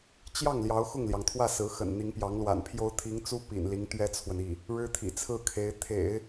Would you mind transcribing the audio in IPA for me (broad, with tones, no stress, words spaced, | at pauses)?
t͡ɕjɑ˥˩ŋ ljɑ˧˥ʊ̯xʊ˥˩ŋljɑ˩ŋt̪ʰwä˥˩ sɹ̩˧˥xə̰˨˩n n̪i˧˥ŋpjɑ˧˥ŋlwa̰˨˩npʰjo˥ʊ̯ t̪ʰi˧˥ŋt͡su˥ pḭ˨˩nli˧˥ŋ t̪ɥɛ˥t͡sʰwə˨ni˥˩ | ɻɻ̩˥t̪ʰḭ˨˩t͡sʰɹ̩˥˩kʰe˧˥ɪ̯ t̪ʰḛ˨˩˦ɪ̯